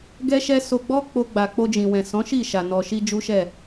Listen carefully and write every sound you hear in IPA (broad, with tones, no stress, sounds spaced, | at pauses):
ɡ ɛ˦ ʃ ɛ˦ s o˧ ɡ͡b ɔ˦ k͡p o˧ ɡ͡b a˨ k͡p o˧ d͡ʒ ĩ˨ w ɛ̃˨ s ɔ̃˨˦ ʃ i˦˨ ʃ a˨ n ɔ˨ ʃ i˧ d͡ʒ u˦ ʃ ɛ˦˨